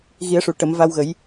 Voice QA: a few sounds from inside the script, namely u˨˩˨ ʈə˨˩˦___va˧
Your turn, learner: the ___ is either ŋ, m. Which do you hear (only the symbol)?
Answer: m